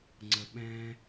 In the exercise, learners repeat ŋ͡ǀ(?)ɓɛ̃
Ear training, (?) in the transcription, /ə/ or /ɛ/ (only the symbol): ə